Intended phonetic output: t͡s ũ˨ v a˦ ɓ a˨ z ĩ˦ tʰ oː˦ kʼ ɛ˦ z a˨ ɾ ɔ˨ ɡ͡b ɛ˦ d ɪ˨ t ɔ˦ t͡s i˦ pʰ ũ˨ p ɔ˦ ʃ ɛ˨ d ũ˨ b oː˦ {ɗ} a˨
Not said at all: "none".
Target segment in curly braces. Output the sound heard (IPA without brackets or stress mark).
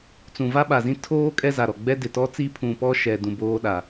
ɗ